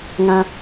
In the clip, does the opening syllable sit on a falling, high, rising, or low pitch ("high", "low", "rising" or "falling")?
high